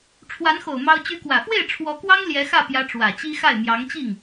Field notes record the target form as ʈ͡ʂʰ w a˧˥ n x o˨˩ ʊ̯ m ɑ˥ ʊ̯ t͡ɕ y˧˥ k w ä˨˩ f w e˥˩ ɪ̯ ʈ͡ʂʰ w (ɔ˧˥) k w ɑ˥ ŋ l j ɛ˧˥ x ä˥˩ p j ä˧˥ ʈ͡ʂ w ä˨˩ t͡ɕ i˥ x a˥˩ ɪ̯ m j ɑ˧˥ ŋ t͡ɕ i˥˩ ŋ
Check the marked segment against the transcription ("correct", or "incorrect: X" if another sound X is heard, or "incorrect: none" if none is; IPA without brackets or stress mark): correct